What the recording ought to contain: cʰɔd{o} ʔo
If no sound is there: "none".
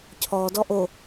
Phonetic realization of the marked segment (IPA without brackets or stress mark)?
ɔ